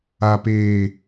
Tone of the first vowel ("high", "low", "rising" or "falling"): low